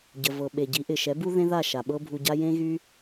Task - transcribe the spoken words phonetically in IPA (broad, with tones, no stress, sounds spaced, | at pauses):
ɟ ə˩ v ɤ˩ ɓ e˩ ɟ i˩˥ ʔ ɪ˩ ʃ ɛ˩˥ b u˥ ð ẽ˥ ð a˥˩ ʃ a˩ ɓ ɤ˥ bʱ u˧ ɟ a˥ j ẽ˥ ɣ y˥